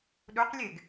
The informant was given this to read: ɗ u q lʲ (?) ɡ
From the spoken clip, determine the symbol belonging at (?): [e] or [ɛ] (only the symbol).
e